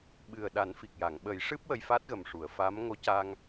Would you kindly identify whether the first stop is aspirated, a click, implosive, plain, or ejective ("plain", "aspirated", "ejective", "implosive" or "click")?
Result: implosive